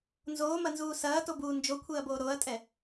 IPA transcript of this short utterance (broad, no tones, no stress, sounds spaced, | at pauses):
n z oː m ɐ n z uː s ɐː t o b uː n d͡ʒ o kʷʰ e ɐ̯ b oː ɾ o ɐ̯ tʼ ɛ